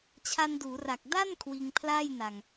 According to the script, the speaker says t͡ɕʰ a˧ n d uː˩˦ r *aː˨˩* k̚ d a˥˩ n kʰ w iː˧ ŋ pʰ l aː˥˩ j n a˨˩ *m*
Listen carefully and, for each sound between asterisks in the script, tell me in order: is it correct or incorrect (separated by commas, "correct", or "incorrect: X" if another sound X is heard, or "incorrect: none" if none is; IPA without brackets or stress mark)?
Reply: incorrect: a˨˩, incorrect: ŋ